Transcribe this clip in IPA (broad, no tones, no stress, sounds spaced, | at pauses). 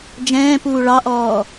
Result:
d͡ʒ ɛ̃ː p uː ɭ ɑ ʔ ɔː